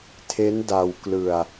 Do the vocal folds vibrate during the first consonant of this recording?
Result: no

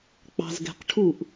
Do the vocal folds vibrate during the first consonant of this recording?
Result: no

